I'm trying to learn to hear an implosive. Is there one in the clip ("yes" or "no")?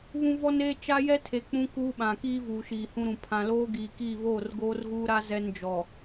yes